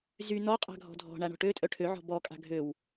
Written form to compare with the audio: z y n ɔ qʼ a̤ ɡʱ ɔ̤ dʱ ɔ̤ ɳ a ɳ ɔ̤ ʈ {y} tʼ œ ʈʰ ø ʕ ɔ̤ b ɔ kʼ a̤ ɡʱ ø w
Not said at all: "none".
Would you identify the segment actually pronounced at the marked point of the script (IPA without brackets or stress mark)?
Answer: ø